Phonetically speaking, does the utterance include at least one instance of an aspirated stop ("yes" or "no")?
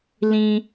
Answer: no